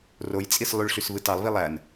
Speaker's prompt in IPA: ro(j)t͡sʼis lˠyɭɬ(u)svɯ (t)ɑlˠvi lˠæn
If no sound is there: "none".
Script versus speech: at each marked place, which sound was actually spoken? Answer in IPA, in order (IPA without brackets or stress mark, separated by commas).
j, y, t